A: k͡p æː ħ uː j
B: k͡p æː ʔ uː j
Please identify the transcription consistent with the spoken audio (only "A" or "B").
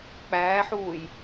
A